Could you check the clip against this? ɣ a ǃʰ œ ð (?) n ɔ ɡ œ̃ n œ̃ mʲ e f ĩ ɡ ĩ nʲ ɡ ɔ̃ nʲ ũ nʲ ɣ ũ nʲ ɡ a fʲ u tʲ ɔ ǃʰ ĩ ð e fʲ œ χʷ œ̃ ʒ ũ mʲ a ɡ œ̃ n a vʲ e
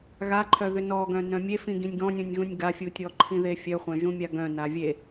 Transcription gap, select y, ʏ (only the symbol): ʏ